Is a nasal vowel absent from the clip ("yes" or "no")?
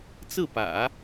yes